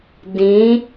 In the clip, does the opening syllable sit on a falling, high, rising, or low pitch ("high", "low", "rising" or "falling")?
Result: rising